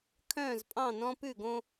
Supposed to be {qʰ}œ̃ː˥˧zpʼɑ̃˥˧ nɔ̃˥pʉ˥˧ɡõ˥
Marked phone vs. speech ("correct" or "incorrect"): incorrect